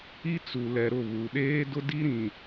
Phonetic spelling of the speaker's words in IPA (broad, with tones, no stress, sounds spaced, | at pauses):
i˦ t͡s u˨ l ɛ˨ ɾ ʊ˦˨ β u˨ ɗ eː˦ d ʊ˦ d i˦ ɾ ĩ˨